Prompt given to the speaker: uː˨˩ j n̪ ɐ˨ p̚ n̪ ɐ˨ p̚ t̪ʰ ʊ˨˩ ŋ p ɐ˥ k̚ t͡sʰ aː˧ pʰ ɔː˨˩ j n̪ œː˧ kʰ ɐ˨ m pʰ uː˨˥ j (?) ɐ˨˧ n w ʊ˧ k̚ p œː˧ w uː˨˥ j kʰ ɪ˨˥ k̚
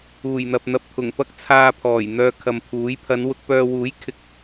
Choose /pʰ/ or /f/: pʰ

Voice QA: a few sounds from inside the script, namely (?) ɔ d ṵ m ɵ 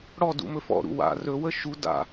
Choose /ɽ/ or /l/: ɽ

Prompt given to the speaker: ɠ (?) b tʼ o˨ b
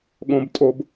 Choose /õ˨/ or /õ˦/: õ˨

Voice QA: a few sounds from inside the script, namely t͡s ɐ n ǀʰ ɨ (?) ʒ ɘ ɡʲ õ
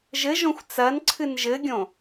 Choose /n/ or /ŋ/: n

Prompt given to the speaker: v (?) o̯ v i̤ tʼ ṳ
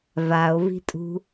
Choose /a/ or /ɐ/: a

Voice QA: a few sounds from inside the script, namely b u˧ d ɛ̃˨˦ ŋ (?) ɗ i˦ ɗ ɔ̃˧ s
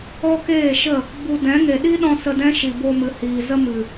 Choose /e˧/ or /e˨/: e˨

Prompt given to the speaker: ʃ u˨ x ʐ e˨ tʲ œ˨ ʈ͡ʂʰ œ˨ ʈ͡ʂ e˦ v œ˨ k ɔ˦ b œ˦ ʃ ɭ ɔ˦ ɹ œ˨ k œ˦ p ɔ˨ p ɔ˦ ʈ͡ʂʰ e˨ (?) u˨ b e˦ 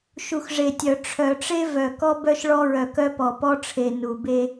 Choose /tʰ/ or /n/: n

